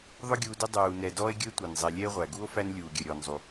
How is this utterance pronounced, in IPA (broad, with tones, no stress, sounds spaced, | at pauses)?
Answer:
ðˤ ʊ˦ ɡʲ uː˨ d ɪ˦ dˤ uː˩ n ɛ˨ d ɔː˥ e̯ ɡʲ ə˥ e̯ tʷ æ˩ n zˤ ɛ˨ lʲ ɛ˦ e̯ ʁʷ æ˩ ɡ u˥ o̯ f æ˦ n lʲ uː˩ ɡʲ ə˩ ɾʲ ɔː˩ n zˤ u˩